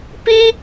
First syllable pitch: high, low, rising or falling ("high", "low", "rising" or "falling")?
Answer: high